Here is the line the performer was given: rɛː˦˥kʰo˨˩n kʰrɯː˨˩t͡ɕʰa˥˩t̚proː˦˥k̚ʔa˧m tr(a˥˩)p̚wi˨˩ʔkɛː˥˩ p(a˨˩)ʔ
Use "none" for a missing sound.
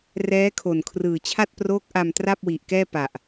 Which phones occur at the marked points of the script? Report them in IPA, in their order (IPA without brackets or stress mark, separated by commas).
a˥˩, a˨˩